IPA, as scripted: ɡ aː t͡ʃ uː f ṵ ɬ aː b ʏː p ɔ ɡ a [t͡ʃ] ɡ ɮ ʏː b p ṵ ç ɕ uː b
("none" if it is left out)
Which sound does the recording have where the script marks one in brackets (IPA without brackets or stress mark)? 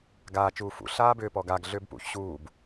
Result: none